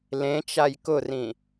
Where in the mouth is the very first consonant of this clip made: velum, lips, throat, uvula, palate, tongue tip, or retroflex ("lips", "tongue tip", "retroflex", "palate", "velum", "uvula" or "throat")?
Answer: tongue tip